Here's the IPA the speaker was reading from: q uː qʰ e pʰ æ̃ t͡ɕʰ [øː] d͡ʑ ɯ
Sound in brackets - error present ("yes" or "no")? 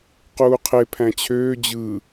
no